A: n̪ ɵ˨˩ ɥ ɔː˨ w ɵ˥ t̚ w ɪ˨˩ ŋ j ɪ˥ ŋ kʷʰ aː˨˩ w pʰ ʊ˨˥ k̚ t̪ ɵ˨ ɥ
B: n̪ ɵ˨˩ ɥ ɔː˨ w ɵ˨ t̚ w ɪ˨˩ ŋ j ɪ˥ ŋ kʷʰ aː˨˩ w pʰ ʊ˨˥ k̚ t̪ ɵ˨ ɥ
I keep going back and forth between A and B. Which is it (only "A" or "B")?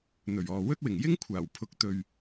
A